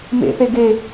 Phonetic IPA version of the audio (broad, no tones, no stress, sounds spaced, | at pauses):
m ḛ θ e ɡ e